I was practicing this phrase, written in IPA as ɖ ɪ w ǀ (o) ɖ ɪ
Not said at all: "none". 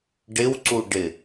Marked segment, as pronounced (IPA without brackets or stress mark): u